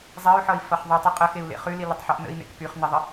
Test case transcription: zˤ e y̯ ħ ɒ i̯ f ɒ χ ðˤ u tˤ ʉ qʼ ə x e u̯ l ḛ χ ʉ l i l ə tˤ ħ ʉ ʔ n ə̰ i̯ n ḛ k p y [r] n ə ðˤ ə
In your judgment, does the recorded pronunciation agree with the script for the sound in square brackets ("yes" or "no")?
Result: no